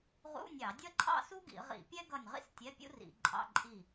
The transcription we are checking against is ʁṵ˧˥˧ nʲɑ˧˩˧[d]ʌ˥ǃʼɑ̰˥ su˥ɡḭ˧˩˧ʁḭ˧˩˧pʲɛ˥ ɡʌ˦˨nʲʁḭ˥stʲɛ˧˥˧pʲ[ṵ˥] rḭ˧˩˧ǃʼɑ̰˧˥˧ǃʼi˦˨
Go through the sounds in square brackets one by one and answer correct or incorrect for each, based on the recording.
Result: incorrect: dʲ, correct

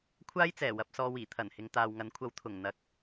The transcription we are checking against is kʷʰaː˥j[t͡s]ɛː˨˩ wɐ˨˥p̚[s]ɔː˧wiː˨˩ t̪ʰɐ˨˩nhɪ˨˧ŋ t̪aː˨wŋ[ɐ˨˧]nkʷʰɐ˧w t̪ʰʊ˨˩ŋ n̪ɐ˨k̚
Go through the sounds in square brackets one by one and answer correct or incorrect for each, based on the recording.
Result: correct, correct, incorrect: ɐ˨˥

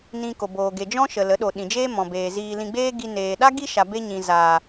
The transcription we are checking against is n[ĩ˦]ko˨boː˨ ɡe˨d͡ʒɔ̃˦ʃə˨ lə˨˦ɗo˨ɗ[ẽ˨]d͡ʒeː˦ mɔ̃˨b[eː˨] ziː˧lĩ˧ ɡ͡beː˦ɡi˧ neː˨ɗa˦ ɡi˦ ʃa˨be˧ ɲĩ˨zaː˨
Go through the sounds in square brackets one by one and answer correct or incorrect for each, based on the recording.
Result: incorrect: ĩ˧, incorrect: ĩ˨, correct

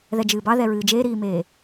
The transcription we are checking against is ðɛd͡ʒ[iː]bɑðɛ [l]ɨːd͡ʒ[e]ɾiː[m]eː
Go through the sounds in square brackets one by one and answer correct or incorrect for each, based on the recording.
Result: incorrect: ɨː, incorrect: ɹ, incorrect: eː, correct

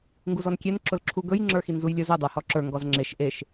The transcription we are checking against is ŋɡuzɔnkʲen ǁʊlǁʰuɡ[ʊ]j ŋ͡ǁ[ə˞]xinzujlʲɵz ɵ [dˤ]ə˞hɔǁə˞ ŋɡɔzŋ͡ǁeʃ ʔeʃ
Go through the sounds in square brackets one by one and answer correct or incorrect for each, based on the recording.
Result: incorrect: ɵ, correct, correct

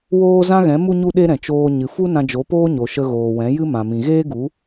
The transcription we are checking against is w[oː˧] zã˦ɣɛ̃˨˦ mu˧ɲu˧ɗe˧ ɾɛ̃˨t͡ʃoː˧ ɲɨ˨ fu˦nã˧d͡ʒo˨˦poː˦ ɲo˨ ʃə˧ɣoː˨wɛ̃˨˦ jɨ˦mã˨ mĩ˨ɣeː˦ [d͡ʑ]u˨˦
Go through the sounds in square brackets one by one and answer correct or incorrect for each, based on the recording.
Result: incorrect: oː˦, incorrect: ɡ

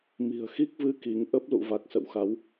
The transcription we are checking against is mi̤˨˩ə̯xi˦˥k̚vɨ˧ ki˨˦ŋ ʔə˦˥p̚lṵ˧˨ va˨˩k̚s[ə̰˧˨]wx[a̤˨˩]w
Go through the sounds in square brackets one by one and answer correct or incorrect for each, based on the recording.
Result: correct, incorrect: a˨˦

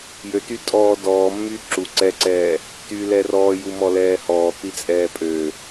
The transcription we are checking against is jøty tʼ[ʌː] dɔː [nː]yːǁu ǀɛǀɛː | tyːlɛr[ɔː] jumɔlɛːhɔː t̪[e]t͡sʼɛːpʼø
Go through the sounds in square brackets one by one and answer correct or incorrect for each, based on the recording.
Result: incorrect: ɔː, incorrect: mː, correct, incorrect: i

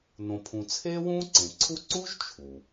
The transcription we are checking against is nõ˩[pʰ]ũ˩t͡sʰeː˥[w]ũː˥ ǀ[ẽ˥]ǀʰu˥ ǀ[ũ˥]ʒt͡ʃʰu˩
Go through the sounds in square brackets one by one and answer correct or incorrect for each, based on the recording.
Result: correct, correct, incorrect: ẽ˩, incorrect: u˥

